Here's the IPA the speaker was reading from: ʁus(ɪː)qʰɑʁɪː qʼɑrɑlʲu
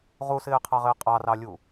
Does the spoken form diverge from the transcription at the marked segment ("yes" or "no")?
no